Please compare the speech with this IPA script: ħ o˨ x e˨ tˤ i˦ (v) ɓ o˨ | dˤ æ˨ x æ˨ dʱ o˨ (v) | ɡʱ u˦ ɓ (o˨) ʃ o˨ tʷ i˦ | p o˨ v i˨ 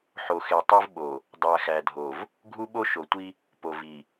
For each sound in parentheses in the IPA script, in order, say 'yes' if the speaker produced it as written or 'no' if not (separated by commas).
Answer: yes, yes, no